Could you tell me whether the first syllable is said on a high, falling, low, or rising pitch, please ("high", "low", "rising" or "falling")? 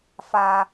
high